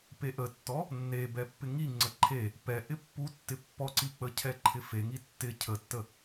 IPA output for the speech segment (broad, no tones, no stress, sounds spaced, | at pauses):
p e ʔ ə tː ɔ | nː e b ɛ pː ɪ ŋ i ŋ͡ǀ ə ǃʰ e | p ɛ ʔ ɪ pː u tː ɪ pː ɔ ǀ i k͡p ə cʰ ɛ ǃʰ ɪ f e ŋ i tː ɪ cʰ ə tː ə